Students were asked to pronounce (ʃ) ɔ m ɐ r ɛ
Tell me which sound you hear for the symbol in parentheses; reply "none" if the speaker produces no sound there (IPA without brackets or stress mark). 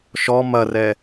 ʃ